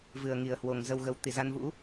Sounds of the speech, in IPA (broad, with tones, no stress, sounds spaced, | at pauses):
v ɨ˨˩ ə̯ ŋ i˨˩ ə̯ h w o˨˩ ŋ z ə˨˩ w ɣ ə˨˩ w t̪ i˧˩ z a˧ n v ṵ˧˥